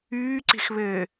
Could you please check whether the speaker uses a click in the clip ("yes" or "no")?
yes